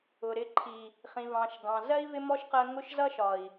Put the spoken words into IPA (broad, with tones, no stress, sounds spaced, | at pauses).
ʊ˨ ɾ ɪ˧ ǃʰ i˨ | χ ĩ˨ v ɑ̃˨ ʃ ɡ ɑ̃˨ z ɜ˦ i̯ v ɪ˦ m ɔ˦ ʃ q ɜ˧ ŋ ʊ˦ ʃ z ʌ˦ ʃ ɒ˨ i̯